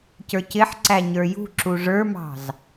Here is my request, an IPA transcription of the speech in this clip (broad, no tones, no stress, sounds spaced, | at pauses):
c ə˞ c ɪ ħ ǀ æ ɲ ə˞ j ṳ ǁ u ʐ ə˞ m ɑ̤ z